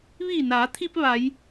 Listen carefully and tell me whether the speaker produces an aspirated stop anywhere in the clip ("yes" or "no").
yes